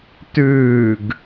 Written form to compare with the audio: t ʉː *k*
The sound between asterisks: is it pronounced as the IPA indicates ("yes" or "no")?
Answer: no